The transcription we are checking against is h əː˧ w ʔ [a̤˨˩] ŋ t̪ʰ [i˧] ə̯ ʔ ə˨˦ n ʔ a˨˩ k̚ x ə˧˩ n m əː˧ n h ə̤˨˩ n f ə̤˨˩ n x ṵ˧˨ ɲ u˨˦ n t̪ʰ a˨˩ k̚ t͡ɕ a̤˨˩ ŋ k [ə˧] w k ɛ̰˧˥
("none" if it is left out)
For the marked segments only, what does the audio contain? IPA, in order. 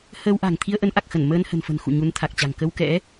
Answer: a̤˨˩, i˧, ə˧

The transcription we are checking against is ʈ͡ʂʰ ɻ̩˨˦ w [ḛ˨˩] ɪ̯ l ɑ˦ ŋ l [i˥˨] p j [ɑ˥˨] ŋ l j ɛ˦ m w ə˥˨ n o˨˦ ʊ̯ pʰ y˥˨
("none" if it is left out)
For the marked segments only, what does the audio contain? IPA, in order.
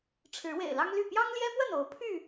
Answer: ḛ˨˩, y˥˨, ɑ˦

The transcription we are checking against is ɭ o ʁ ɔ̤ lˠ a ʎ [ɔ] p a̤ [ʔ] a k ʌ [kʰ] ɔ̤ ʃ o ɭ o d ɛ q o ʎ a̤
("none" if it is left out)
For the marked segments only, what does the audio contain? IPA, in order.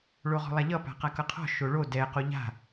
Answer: ʌ, q, qʰ

